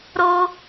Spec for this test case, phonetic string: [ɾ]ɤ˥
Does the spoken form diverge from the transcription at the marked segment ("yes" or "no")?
no